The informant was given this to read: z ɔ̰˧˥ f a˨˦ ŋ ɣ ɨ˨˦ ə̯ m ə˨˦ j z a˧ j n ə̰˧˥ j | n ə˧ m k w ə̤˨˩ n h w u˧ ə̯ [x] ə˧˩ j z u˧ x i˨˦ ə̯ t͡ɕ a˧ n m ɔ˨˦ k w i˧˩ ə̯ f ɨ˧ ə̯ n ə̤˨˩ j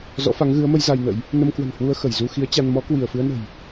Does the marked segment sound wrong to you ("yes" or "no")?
no